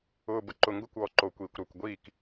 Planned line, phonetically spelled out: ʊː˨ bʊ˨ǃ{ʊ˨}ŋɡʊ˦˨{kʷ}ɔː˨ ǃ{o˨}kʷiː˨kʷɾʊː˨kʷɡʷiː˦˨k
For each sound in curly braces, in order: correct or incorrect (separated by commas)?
correct, correct, correct